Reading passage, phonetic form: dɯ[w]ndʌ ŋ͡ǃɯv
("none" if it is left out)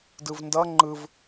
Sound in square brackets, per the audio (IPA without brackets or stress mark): v